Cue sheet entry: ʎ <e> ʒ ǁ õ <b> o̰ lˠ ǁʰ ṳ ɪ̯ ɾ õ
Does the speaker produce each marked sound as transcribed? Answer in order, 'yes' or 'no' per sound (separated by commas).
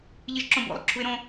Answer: no, yes